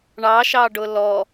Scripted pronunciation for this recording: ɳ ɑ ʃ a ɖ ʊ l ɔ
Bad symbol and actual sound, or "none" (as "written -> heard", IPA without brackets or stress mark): a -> ɑ